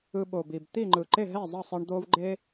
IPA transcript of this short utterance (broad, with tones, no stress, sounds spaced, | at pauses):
ɯ˧ ɓ o˨˩ b i˨˩ b t̪ i˥˩ ŋ͡ǃ ɯ˨˩ ǃ e˥˩ ɦ ɛ˥˩ zˤ ʌ˥˩ sˤ i˧ ɳ d̪ o˧ v ɡ͡ǃ e˧